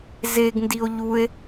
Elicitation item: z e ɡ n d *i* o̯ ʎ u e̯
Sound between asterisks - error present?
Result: no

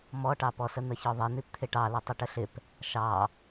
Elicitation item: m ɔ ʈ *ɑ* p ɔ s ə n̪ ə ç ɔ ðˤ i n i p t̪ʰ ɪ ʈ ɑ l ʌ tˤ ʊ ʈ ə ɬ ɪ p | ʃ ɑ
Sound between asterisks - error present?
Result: no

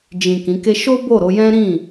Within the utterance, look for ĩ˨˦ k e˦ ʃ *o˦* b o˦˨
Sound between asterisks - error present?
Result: no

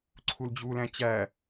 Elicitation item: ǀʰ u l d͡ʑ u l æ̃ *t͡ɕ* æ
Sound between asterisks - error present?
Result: no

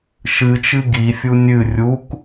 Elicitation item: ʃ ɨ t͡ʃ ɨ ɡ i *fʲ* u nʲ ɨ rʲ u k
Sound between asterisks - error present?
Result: no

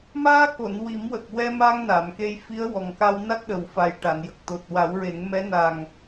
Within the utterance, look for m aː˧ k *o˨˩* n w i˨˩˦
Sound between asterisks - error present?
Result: yes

